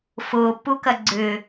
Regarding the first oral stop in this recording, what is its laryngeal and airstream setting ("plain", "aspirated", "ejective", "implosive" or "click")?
plain